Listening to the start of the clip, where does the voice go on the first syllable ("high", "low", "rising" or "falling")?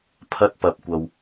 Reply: high